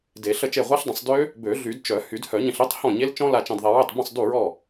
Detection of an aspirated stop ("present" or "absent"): absent